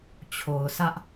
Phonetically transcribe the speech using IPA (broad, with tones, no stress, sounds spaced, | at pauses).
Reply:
t͡ɕʰ o˨ ʊ̯ s ä˦ ʔ